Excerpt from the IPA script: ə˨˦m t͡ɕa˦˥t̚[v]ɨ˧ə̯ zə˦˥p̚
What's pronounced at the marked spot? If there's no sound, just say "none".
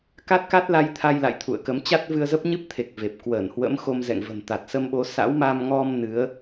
v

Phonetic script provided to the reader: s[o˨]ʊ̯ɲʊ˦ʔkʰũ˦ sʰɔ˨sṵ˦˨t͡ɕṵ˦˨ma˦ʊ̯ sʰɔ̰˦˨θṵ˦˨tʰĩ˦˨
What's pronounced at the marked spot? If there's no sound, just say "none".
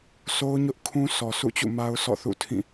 o˦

